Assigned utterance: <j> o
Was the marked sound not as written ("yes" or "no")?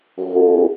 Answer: yes